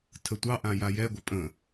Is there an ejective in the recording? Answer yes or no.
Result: yes